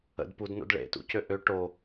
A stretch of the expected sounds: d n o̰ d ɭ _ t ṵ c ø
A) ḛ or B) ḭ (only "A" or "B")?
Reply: A